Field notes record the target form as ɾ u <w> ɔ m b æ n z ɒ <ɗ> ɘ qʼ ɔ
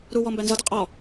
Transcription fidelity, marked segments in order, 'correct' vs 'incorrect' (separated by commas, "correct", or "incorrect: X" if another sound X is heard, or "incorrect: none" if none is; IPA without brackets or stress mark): correct, incorrect: d